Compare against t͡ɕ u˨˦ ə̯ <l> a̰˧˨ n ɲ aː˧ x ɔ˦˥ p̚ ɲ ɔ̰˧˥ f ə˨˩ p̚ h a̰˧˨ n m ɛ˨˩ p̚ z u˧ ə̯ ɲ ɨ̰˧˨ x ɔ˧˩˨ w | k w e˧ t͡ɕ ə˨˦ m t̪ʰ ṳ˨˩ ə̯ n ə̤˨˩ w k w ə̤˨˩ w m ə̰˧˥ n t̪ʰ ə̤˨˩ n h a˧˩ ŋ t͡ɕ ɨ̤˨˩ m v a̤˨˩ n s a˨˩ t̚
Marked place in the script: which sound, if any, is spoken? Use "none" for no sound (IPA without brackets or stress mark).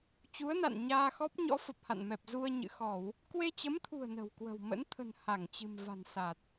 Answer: n